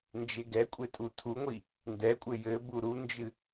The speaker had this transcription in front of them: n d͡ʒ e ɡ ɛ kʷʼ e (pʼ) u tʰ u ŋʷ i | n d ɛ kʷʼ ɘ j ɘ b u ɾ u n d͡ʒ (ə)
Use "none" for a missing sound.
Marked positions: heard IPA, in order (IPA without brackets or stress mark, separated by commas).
tʼ, ɨ